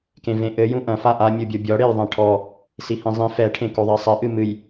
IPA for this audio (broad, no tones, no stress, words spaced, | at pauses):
kẽvẽʔɘ jũʔɐ̃ faʔa mʲubʲobʲɔ ɽejðˤɛ̃ʈʰɔ | sihĩzˤĩ fɛ ʈʰẽkoðˤɛsˤɘ ʔɨmɨj